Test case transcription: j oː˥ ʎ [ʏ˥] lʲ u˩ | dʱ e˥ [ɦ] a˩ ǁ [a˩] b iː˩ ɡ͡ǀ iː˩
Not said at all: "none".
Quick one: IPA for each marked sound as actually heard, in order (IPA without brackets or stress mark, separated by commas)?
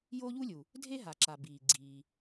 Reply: u˥, ɦ, a˩